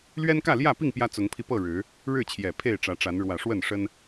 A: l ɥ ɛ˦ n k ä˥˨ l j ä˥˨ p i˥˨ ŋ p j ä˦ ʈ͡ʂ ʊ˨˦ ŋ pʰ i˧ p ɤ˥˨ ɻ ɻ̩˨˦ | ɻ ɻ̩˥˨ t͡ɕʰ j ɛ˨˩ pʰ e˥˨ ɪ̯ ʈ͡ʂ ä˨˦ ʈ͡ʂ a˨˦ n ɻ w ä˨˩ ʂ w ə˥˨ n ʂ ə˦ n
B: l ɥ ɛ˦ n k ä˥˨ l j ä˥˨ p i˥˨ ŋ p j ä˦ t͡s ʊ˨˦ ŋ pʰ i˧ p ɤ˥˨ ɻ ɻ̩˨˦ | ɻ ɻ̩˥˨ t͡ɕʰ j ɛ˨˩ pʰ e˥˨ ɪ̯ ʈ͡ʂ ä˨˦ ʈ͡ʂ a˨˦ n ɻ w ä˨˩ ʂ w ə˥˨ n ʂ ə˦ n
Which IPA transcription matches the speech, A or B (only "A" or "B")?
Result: B